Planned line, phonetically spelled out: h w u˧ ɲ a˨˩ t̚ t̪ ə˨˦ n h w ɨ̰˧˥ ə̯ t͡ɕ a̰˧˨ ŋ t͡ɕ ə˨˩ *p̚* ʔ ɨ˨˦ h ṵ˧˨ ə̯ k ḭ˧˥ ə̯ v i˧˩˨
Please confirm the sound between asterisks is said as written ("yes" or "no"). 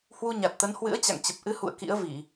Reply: yes